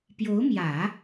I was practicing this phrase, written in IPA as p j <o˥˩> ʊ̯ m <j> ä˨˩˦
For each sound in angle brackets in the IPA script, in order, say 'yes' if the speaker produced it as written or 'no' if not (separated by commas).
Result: no, yes